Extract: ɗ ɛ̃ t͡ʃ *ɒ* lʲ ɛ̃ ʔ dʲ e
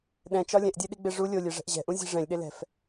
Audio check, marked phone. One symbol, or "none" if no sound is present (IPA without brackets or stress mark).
ɒ